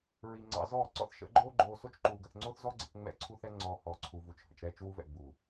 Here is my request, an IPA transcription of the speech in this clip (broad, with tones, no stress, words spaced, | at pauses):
ɹi˨ŋ͡ǀɑ̰˧zɔː˦˨ ǀɔ̰˧θʃə̰˨˦ɡ͡ǃoː˦ɡ͡ǃoː˧ so˦t͡ʃǃuː˧ɡə˧θŋ͡ǀo˦θ zɔ˦ɡ͡ǀə̰˧k ŋ͡mɛ̰˦˨ǀʰu˦θɛ˦ŋ͡ǀɔː˧ hɔː˧ǀʰu˧vu˧t͡ʃhə̰˧t͡ʃ ɾɛː˧t͡ʃwu˧vɛ̰˨ ɡ͡bu˨